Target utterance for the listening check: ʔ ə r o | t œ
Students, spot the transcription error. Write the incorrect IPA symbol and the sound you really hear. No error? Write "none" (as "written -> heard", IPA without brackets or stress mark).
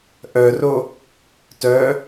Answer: ə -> œ